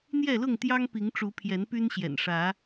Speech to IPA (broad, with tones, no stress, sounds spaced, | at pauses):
n̪ j ɛ˥˨ l ʊ˥˨ ŋ t̪ j ɑ˦ ŋ p i˨˦ ŋ ʈ͡ʂ u˨˦ pʰ j ɛ˨˦ n p y˦ n ɕ j ɛ̰˨˩ n ʂ ä˨˦